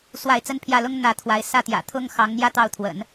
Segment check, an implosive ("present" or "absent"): absent